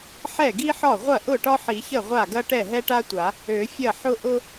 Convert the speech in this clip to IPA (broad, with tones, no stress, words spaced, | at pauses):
ħɛ˥˩ɡi˥ħɒ˥˩ ʁʷɐ˥˩ʔʊ˥˩ ʈɒ˥ħi˨˩˦çə˥˩ ʁʷa˥˩ɡɐ˥ ʈɛ˥˩ɦɛ˥ʈa˥tʷa˨˩˦ | ø˨˩˦fʲɐ˥˩ ħʊ˥ ʔʊ˥